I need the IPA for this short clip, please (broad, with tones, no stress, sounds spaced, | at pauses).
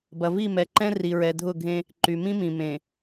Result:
b ɐ˨ v i˦˨ m ɛ˨ ǃ ɛ̃˦ r i˨ ɹ ɛ˨ dʱ ʊ˦˨ ɡʱ ẽ˦ | ǃ y˨ m ĩ˦ m ĩ˨ m ẽ˨